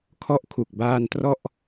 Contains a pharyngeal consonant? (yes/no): no